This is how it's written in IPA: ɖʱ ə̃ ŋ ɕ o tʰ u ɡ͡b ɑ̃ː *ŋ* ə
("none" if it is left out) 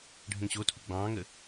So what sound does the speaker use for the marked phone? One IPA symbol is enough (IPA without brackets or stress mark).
ŋ